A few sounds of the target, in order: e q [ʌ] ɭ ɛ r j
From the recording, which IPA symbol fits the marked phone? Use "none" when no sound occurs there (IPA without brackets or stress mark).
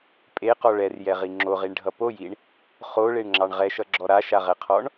ɔ